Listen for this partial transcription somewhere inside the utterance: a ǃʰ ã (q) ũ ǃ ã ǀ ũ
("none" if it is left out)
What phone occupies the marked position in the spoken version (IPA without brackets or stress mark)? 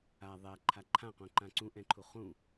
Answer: q